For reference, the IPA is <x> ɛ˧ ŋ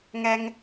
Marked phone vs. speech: incorrect: ŋ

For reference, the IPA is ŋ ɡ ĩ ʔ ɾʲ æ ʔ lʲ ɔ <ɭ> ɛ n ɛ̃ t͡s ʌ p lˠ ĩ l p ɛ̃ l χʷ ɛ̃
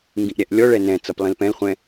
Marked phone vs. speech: correct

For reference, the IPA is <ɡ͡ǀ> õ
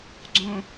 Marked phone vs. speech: correct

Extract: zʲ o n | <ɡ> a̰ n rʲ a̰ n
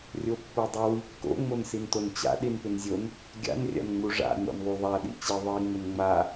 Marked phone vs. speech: incorrect: ɡʲ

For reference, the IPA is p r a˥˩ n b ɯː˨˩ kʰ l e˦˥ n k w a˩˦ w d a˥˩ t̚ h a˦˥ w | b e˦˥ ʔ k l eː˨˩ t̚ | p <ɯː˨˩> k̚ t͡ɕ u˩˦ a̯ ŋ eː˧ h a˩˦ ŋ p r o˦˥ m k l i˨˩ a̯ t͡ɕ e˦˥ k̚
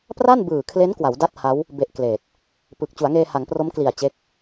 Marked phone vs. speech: correct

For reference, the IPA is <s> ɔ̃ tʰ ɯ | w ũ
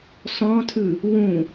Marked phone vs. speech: correct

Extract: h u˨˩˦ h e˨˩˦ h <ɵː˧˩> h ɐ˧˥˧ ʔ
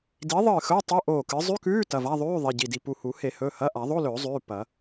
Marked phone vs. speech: incorrect: ɵː˩˧˩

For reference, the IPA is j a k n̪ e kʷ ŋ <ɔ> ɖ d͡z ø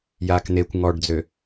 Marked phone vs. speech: correct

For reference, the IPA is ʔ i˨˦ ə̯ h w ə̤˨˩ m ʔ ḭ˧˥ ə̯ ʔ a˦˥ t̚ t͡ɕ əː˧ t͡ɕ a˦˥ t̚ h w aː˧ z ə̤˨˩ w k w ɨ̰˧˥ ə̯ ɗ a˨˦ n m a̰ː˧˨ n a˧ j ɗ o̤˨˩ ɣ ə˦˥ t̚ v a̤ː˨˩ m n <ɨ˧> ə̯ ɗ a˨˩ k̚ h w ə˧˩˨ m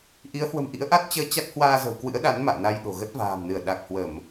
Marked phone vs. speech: incorrect: ɨ˧˩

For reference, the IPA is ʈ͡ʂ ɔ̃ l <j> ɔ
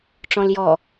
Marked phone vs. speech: correct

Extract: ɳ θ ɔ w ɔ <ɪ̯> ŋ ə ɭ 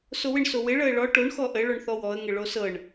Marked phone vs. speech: incorrect: ə̯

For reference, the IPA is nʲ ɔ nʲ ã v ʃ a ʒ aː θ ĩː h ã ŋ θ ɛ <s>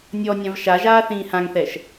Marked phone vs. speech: incorrect: ʃ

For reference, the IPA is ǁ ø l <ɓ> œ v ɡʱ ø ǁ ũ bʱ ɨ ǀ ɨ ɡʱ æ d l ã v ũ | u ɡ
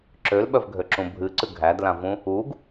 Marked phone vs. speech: correct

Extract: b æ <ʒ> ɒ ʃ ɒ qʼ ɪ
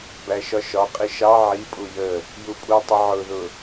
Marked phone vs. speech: incorrect: ʃ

